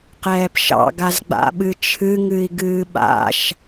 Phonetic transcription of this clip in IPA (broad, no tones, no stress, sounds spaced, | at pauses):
q ɛː p ʃ ɑ̰ ɡ a z ɡ͡b a̰ ɓ ɨ t͡ʃʰ ɨ ŋ ɨ i̯ ɡ ɨː ɓ a̰ ʃ